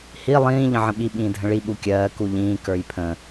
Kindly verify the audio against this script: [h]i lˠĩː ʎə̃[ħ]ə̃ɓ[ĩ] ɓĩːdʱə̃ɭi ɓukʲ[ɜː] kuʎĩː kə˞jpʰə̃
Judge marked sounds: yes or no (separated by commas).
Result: yes, no, no, yes